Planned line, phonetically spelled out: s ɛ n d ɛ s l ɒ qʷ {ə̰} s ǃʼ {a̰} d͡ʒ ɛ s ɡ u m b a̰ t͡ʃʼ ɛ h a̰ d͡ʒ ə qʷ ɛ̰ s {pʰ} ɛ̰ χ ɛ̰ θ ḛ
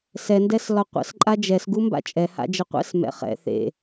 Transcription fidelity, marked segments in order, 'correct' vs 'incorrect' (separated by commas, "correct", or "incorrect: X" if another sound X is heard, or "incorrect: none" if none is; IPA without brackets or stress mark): correct, incorrect: a, incorrect: m